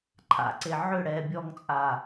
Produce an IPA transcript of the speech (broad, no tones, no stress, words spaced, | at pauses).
ǃʰa̰ǀe ʕʏ ɽɛːbʲɔŋt͡sʼaː